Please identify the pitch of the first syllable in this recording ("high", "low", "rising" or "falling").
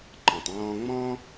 low